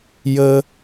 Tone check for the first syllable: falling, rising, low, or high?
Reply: low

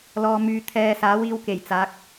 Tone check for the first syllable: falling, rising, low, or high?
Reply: low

